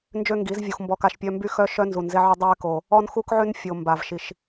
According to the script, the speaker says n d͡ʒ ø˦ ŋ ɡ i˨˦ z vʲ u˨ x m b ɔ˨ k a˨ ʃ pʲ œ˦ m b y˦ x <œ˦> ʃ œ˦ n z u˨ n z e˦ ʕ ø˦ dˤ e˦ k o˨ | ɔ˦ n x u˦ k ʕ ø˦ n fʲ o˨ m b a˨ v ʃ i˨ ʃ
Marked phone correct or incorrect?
correct